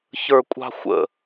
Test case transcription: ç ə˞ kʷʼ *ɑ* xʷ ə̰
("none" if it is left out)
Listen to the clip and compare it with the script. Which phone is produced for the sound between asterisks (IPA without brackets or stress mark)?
ɑ̤